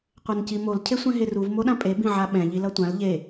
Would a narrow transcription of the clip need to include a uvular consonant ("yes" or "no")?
yes